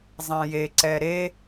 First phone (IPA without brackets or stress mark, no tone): zˤ